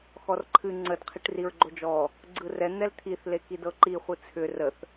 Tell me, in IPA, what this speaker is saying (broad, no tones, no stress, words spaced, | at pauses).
xɔrǃʰɨ ŋ͡ǀəd qʰiʈriɹɡ͡ǃod͡ʒɔ | ɡ͡ǀɯrɛ n̪ɛlt̪ʰiθ lekidɤǃi χʷɨt͡sʰʏ rəθ